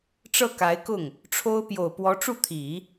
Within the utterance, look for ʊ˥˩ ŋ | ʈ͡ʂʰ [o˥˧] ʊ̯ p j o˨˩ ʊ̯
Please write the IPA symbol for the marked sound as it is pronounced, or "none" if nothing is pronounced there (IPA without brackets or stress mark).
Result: o˥